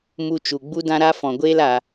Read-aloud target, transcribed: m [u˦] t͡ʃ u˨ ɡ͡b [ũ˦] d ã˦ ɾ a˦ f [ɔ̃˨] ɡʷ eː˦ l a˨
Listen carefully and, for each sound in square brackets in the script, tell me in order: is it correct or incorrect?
correct, incorrect: u˦, correct

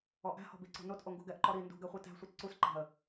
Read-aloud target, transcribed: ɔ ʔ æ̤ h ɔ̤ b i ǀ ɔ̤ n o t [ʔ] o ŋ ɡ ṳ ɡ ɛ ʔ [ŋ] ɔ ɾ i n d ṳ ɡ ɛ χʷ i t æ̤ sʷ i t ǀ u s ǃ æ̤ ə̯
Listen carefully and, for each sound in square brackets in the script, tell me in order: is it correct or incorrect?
correct, incorrect: ǃ

